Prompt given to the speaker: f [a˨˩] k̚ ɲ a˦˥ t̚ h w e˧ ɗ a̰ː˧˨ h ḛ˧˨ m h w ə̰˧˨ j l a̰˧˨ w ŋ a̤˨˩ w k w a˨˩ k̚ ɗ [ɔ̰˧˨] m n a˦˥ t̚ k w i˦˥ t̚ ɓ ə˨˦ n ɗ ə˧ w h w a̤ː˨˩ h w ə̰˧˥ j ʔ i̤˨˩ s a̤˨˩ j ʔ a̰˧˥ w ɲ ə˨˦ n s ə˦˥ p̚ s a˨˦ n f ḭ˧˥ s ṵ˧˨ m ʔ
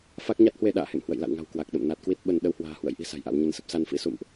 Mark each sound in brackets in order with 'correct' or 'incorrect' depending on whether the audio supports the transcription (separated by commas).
incorrect, incorrect